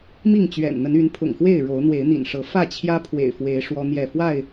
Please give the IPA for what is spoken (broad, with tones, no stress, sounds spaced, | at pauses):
m i˥˨ ŋ t͡ɕ ɥ ɛ̰˨˩ n n̪ ə˨˦ n y˨˦ n pʰ ʊ̰˨˩ ŋ x w e˥˨ ɪ̯ ɻ o˨˦ ʊ̯ n̪ w e˨˦ ɪ̯ n̪ ḭ˨˩ n ʂ ɤ˨˦ f ä˥˨ t͡ɕʰ j ä˦ pʰ w ḛ˨˩ ɪ̯ f w e˨˦ ɪ̯ ʂ w ɔ˦ n̪ j ɛ˥˨ f w a˥˨ ɪ̯